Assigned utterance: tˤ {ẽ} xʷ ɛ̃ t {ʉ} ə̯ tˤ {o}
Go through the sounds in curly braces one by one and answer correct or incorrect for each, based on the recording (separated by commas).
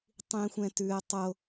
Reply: incorrect, correct, correct